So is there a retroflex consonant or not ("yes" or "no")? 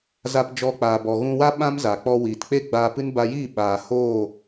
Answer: no